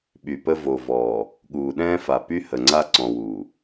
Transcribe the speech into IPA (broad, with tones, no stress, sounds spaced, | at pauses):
ɓ y˨ p ə˦ v o˨ v ɔː˨ | ɠ uː˨ ɗ ɛ̃ː˦ f a˨ p y˦ h ə˨ ŋ͡ǀ a˦ ǀ ɔ̃˨ w uː˨